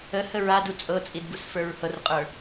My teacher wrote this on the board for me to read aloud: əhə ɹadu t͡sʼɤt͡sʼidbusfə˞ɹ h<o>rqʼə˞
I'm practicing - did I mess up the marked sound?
yes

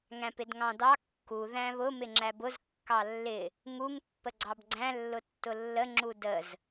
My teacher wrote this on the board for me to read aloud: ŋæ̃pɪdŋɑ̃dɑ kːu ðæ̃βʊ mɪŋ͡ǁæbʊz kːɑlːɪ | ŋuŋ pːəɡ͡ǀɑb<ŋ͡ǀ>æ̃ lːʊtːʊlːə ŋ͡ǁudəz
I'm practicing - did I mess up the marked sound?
yes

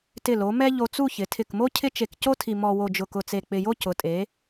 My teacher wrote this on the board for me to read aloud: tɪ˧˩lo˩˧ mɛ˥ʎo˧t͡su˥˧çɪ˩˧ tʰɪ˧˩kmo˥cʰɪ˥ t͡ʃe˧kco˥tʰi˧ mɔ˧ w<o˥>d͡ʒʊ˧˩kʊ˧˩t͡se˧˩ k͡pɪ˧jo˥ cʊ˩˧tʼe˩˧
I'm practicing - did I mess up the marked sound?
yes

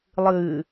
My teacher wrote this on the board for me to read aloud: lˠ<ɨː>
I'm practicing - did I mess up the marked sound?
no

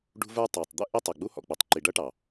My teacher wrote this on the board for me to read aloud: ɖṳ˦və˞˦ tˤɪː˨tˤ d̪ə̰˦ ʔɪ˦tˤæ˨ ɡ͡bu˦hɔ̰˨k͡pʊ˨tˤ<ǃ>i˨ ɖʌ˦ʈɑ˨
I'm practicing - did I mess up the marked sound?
no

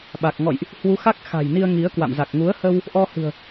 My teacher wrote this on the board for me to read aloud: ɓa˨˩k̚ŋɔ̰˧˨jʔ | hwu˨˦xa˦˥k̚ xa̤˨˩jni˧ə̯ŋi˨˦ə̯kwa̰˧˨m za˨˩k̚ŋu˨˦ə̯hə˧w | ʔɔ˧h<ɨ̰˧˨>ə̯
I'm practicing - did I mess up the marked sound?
yes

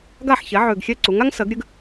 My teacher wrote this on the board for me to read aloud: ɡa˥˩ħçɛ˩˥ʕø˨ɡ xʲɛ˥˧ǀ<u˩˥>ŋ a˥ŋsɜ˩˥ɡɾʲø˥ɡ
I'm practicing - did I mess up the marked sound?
no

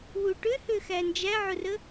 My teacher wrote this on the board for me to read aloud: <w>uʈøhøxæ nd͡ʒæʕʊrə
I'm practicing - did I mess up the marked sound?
no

